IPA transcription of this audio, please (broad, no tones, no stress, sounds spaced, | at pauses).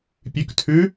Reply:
pʲ ʉ k tʰ ʉ